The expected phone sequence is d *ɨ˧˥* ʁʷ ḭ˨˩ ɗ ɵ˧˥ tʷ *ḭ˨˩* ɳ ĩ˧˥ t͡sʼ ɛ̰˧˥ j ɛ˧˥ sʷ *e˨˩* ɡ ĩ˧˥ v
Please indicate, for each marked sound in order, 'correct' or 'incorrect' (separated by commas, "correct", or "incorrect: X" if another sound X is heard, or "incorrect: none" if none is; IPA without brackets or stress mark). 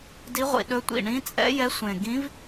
incorrect: i˧˥, correct, incorrect: ẽ˨˩